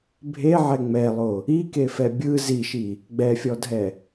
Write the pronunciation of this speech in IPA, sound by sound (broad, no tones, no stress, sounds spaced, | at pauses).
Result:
bʱ e ʕ ɛ ŋ͡m ɛ lˠ o | i k e f ɛ bʲ ɯ z i ʃ i | ɡ͡b ɛ fʲ ɔ dʱ ɛ